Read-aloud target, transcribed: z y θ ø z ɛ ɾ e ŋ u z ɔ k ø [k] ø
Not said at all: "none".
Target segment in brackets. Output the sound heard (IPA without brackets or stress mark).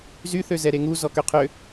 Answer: qʰ